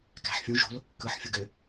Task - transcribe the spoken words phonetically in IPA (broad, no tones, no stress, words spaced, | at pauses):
kæ̤ħfʲũ ʒo̤l | kɯħ fʲuɡø